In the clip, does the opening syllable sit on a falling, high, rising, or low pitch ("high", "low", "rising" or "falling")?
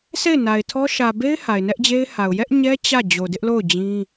falling